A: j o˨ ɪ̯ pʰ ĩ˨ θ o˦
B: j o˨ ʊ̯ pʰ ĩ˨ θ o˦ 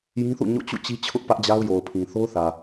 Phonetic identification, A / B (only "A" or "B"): B